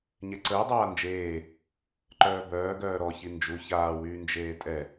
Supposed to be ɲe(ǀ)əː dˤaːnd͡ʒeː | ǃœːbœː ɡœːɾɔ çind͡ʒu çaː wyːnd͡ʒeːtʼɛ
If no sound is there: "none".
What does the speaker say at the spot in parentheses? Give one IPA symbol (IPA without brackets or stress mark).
ǀ